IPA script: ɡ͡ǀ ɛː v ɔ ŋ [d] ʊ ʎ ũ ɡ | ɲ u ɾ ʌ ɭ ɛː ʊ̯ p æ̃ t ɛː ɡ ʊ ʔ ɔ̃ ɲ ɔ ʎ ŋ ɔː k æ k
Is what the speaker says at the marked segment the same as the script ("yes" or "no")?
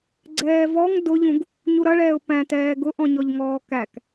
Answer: yes